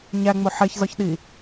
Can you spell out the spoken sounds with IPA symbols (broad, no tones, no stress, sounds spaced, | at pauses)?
ɲ æ ŋ͡m o ħ e ç z ɒ ç ɗ i